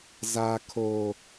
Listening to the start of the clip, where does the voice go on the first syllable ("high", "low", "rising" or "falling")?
high